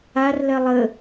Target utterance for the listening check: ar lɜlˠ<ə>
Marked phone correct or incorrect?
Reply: correct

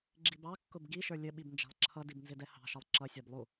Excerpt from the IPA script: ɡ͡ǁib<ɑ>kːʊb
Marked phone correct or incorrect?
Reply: correct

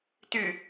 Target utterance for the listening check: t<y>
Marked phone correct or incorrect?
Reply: correct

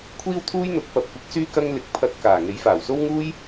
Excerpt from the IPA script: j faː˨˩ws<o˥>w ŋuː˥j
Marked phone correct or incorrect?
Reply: correct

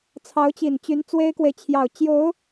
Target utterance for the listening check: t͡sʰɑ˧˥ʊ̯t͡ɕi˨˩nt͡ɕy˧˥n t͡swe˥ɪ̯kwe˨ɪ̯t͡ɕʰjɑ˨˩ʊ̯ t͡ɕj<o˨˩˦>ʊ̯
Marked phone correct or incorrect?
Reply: incorrect: o˧˥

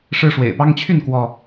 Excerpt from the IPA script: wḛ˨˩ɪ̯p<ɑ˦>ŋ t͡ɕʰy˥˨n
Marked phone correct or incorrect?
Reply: correct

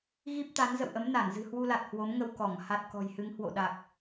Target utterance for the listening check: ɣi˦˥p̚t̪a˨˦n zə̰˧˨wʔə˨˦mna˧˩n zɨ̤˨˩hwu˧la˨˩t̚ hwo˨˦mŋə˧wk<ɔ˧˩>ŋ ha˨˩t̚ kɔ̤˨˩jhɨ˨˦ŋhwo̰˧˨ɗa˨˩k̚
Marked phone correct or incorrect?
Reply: correct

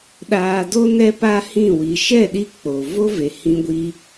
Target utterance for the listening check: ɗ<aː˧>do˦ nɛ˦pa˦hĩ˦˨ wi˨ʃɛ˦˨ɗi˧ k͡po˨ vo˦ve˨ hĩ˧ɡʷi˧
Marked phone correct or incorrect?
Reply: correct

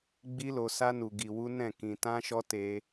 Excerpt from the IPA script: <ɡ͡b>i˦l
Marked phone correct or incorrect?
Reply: correct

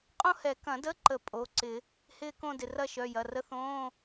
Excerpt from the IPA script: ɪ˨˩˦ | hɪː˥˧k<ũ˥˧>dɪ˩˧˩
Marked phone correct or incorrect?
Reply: incorrect: õ˥˧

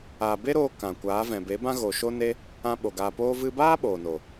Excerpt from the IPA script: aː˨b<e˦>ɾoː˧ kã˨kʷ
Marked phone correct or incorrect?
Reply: correct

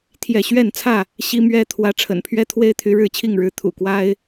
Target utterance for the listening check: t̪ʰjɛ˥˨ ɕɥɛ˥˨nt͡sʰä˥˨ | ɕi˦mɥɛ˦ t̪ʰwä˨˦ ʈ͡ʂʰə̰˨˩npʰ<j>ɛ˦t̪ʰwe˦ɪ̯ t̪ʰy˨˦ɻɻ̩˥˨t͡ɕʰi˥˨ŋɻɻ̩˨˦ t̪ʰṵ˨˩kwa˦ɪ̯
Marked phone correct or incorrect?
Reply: incorrect: ɥ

